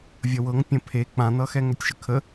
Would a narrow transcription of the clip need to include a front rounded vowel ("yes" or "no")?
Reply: yes